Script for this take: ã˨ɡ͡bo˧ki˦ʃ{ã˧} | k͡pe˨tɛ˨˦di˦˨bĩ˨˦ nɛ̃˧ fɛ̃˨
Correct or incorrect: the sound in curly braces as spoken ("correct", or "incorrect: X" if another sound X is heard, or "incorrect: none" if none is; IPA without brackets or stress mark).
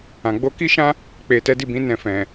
incorrect: ã˦